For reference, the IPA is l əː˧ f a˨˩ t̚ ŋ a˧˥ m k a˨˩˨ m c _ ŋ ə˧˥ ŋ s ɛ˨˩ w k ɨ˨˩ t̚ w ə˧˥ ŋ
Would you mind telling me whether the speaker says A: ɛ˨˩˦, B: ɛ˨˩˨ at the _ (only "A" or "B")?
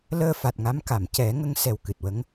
A